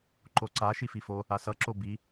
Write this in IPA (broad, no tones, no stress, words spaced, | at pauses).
ǃoǀa ʃififo | asʌ ǁobi